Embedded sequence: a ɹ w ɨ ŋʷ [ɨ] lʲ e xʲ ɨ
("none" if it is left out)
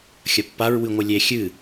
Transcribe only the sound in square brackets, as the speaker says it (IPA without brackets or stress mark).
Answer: ɨ